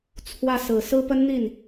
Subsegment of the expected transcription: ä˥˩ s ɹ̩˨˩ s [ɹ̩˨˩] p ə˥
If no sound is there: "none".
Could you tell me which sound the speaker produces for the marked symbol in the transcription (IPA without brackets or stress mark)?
ɹ̩˥